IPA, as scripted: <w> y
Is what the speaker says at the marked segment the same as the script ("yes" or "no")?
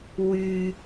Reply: yes